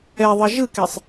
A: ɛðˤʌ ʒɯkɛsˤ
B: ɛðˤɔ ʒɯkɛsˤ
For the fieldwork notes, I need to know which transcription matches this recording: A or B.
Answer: A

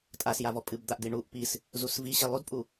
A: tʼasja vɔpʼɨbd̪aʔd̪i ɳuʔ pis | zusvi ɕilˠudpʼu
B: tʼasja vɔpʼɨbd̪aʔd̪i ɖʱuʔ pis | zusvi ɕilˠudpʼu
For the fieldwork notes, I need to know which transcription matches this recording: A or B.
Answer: A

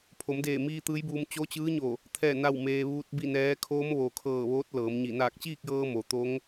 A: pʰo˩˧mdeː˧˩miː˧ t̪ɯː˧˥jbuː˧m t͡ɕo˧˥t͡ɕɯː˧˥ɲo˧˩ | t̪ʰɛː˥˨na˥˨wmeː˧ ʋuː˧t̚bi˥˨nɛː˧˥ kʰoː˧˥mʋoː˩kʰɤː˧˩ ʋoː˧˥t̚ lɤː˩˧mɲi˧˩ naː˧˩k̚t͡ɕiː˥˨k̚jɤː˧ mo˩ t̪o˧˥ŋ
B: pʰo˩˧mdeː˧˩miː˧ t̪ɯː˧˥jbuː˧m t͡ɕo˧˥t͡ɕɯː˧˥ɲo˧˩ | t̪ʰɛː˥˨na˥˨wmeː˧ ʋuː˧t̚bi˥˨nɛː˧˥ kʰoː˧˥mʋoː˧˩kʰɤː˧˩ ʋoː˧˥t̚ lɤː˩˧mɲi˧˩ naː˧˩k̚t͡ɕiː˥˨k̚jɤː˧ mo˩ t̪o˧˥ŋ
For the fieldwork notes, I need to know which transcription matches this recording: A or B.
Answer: A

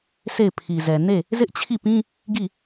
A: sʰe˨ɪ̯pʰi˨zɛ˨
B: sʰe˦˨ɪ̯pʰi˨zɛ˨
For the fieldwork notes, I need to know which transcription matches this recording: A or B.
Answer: B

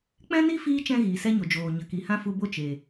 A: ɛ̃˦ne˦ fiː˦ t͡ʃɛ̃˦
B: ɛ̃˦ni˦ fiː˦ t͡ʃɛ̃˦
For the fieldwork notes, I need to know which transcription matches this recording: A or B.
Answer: B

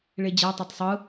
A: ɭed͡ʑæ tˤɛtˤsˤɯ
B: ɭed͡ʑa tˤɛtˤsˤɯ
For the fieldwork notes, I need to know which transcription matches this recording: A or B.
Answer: B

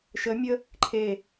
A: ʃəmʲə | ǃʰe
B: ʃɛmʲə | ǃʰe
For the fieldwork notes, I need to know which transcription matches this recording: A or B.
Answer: A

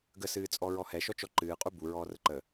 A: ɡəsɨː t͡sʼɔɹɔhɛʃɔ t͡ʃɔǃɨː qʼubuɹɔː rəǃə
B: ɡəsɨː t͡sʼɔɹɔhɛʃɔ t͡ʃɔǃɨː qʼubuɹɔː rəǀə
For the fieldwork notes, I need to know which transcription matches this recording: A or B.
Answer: A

